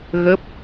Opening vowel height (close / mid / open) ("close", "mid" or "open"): mid